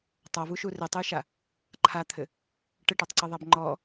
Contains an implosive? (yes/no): no